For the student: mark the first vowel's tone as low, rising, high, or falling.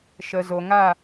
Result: low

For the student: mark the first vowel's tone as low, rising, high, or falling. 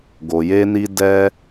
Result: low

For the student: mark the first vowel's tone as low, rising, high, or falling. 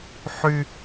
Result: high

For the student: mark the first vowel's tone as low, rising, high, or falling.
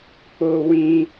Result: high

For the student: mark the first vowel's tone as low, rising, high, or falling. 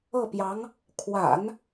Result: falling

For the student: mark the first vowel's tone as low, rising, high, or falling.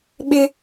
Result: high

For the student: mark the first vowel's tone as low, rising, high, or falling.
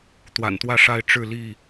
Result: low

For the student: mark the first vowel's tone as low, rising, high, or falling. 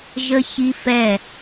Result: high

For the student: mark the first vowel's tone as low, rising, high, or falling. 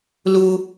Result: high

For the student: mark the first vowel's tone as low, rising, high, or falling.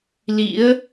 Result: rising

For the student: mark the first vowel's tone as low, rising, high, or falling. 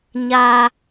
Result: low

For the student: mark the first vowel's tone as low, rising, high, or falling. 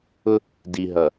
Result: high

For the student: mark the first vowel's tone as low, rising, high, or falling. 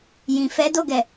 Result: low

